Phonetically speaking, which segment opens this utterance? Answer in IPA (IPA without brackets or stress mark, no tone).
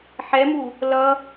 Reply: ħ